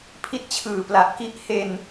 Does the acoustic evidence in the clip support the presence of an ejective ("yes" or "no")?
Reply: no